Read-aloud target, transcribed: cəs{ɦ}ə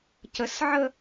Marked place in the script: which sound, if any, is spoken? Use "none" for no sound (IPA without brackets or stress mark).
ʕ